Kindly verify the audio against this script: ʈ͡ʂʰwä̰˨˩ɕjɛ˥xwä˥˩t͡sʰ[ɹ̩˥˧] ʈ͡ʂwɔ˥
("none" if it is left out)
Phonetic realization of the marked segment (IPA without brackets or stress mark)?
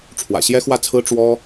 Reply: ɹ̩˥